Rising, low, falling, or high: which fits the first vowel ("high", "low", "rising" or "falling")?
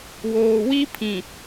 low